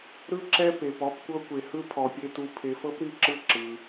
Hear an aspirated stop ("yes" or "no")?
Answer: yes